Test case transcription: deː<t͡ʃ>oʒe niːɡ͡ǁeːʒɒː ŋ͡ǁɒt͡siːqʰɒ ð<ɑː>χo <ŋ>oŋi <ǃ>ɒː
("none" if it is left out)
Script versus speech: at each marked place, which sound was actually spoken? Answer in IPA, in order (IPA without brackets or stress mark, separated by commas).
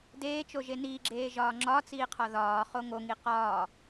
t͡ʃ, ɒː, ŋ, q